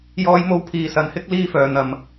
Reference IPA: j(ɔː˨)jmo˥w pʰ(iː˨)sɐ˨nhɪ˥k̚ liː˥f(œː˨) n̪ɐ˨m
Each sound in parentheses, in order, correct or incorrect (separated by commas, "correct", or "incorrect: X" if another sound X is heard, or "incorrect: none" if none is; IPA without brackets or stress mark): incorrect: ɔː˥, correct, correct